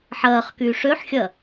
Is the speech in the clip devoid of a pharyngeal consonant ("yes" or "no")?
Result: no